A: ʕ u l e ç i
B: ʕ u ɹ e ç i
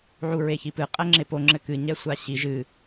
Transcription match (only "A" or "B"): B